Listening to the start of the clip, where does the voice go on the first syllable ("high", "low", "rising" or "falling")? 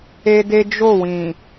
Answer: high